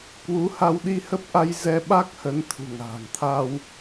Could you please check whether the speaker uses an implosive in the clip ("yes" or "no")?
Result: yes